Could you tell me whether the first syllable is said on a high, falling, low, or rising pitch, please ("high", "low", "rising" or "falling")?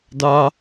high